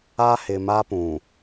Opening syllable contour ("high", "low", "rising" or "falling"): high